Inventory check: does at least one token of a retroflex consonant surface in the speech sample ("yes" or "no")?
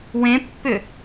no